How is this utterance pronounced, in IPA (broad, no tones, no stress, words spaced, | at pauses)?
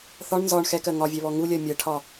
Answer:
θɒɳ nzɒɳ xɛkɜ ŋɒvʲɛβɔ ŋulʲɜ mʲɜʈʰɒ